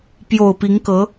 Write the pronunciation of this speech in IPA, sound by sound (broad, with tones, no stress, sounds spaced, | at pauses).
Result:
p j o˨˩ ʊ̯ p i˧˥ ŋ k ɤ˧˥